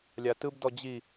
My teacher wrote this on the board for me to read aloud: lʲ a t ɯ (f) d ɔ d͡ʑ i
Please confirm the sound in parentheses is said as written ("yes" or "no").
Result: no